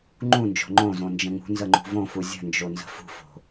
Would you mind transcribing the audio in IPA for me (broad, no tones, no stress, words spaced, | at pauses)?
ŋ͡ǃũnd͡ʒo̤ ŋ͡ǃõzõnd͡ʒə̃ ŋṳnzəŋ͡ǃṳ võfu zʲə̤nd͡ʒonzə̤ fṳfo̤